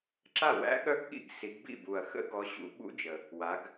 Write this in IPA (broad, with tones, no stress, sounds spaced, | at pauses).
ǁ a˥˩ w æ̰˦˥ ɠ œ˦˥ ɡ ɠ ḭ˥˩ ɡ s i˨˦ ɡ b ḭ˥˩ b u˨˩ ɐ̯ x ə̰˦˥ ɡ ɔ˨˦ ɕ ṵ˨˦ ɓ ṵ˦˥ d͡ʒ ə˨˩ | w a˨˦ ɡ